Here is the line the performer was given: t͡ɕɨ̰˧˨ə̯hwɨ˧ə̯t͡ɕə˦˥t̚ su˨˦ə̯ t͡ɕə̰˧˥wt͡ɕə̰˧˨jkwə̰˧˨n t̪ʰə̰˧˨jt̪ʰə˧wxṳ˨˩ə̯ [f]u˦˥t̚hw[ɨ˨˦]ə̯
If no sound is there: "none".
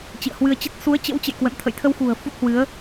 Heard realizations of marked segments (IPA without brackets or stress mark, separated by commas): f, ɨ˨˦